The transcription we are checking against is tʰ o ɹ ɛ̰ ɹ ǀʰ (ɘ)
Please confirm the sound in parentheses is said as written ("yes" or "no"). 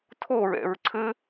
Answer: yes